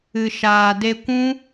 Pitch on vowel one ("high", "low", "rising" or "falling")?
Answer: low